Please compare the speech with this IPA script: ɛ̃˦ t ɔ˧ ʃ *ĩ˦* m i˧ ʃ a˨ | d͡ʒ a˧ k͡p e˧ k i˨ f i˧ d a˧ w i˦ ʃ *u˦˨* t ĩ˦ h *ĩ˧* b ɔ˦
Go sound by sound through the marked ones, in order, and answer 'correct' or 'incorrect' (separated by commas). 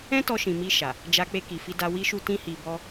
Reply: incorrect, incorrect, incorrect